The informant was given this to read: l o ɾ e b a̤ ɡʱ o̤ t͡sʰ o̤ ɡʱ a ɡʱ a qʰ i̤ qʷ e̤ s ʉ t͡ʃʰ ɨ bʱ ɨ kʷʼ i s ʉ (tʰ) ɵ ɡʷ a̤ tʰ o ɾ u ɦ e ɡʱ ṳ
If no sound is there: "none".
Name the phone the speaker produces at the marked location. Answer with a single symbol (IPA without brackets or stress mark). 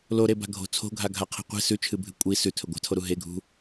tʰ